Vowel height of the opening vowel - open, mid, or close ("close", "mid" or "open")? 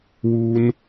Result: close